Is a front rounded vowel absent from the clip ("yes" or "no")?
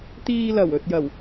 yes